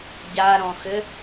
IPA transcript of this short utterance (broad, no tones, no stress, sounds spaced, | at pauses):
ɟ a ɾ ɔ̃ x ɘ